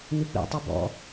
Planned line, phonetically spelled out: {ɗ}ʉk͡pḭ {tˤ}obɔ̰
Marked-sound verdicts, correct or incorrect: incorrect, correct

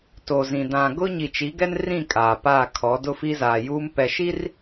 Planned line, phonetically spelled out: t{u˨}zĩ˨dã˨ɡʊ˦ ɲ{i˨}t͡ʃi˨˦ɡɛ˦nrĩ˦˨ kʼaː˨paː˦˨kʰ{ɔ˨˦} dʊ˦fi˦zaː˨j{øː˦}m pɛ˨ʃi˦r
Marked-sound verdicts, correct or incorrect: incorrect, correct, correct, incorrect

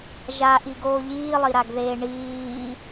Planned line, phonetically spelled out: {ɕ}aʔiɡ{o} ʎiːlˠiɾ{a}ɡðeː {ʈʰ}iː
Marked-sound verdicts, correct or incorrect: incorrect, incorrect, correct, incorrect

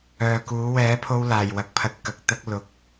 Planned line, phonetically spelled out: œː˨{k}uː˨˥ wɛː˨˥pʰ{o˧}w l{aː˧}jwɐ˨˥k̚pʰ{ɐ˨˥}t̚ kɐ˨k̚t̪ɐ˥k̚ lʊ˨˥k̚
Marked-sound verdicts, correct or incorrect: correct, correct, incorrect, correct

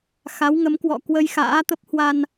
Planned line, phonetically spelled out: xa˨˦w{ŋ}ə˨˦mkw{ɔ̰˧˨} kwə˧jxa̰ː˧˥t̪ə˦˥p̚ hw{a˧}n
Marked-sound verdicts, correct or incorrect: correct, correct, correct

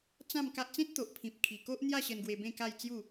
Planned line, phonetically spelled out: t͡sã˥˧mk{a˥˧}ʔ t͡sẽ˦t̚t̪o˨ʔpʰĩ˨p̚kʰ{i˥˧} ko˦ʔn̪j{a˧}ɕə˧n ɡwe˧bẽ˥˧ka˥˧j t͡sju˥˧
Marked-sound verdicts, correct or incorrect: incorrect, incorrect, incorrect

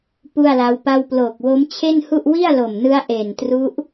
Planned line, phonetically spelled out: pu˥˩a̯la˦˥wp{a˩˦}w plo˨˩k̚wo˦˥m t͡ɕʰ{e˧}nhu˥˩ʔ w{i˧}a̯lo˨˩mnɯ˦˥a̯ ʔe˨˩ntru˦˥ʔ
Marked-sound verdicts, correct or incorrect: incorrect, incorrect, incorrect

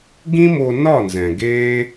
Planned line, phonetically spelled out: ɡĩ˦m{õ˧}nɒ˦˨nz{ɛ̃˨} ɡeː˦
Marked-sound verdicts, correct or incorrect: incorrect, correct

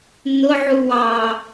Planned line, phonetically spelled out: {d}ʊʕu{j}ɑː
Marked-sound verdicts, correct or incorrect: incorrect, incorrect

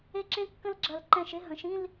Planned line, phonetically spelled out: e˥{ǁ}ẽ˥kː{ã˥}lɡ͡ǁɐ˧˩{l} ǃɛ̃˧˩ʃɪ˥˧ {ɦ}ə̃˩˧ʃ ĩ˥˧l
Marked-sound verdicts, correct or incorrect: correct, incorrect, correct, correct

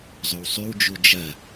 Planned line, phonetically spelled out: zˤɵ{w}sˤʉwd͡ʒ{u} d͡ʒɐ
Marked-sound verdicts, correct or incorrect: correct, correct

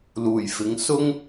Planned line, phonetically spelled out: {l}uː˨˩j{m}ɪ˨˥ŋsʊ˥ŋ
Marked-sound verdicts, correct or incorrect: correct, incorrect

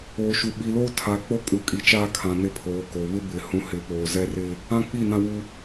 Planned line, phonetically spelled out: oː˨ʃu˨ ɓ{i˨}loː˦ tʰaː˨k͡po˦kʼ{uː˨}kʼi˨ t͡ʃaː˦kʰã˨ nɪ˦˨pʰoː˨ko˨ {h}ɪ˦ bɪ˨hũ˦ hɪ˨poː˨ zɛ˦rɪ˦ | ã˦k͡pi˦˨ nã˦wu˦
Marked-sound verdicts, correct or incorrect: correct, incorrect, incorrect

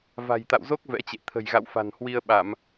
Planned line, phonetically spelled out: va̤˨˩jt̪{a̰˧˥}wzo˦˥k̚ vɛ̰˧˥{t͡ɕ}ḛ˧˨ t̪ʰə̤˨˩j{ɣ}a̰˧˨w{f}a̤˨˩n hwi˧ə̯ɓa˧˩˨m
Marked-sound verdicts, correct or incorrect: incorrect, correct, correct, correct

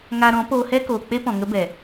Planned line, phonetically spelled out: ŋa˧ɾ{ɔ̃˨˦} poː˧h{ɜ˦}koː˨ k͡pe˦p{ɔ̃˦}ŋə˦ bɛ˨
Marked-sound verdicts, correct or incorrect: correct, incorrect, incorrect

